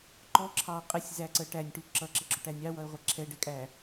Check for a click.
present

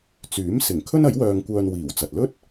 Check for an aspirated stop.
present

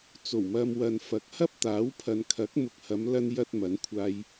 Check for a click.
absent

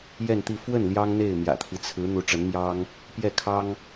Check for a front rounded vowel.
absent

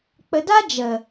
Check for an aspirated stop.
absent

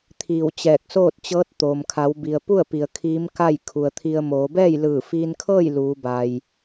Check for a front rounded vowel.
absent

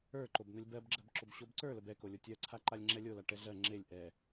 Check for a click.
present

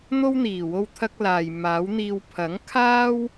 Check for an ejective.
absent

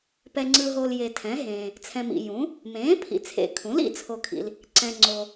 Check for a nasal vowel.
present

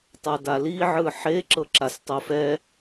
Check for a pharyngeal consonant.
present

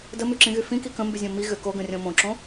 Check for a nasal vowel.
present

